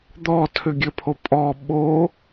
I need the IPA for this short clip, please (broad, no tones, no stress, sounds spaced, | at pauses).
d̪ ɔ tʰ ʏ ɡʲ ɘ pʰ o pʼ ɔ ɓ o